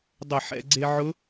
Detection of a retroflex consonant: absent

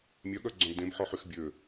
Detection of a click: present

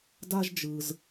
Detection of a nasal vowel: absent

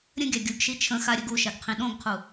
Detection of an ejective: absent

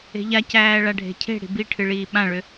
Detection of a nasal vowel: present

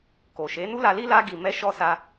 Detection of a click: absent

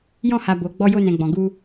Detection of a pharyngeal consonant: absent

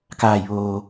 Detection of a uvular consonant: absent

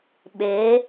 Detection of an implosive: present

